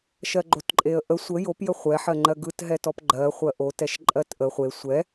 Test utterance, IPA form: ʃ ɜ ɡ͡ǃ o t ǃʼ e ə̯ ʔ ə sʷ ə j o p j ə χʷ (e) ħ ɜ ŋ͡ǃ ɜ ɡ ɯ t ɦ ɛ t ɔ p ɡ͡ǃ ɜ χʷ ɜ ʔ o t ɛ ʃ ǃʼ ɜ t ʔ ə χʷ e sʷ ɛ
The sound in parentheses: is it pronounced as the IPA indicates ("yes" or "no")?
no